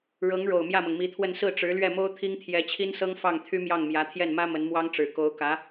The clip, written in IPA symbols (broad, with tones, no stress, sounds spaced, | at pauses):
ɻ ɤ˧˥ ŋ ɻ o˨˩ ʊ̯ m j ä˥˩ m ɤ˩ ŋ m i˧˥ t̪ʰ w ə˥˧ n s ɹ̩˥˩ ʈ͡ʂ ɻ̩˧˥ l ɥ ɛ˥˩ m o˥ ʊ̯ t̪ʰ i˥ ŋ t̪ʰ j ɛ˧˥ t͡ɕʰ i˥ n s ɤ˥ ŋ f ɑ˥˩ ŋ t̪ʰ y˥ m j ɑ˥˩ ŋ m j ä˧˥ t̪ʰ j ɛ˥˩ n m ä˥ m ə˧˥ n m w ɑ˥ ŋ ʈ͡ʂ ɻ̩˨˩ k o˧˥ ʊ̯ k ä˧˥